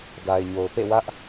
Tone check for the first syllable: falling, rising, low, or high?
low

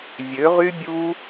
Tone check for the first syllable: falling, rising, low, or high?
rising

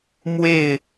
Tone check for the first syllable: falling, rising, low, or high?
falling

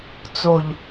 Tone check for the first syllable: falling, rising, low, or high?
low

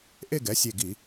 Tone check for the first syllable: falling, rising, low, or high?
falling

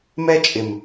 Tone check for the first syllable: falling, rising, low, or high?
high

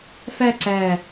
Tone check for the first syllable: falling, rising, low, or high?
falling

